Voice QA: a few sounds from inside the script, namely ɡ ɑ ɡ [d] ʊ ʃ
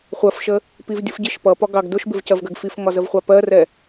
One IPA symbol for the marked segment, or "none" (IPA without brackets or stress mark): d